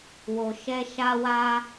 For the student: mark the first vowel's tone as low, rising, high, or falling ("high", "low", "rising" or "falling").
low